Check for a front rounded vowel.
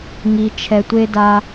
absent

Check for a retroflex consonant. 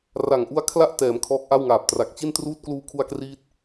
absent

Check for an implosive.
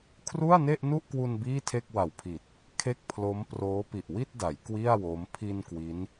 absent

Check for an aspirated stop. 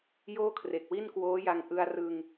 present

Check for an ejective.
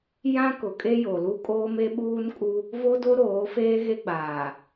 present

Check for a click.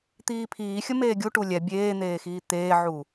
absent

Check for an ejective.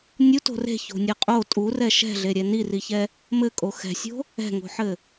present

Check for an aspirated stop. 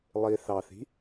absent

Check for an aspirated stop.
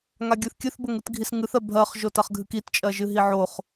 absent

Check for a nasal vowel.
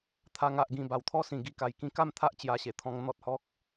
present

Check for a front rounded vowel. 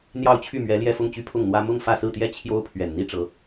present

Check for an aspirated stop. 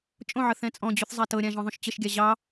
absent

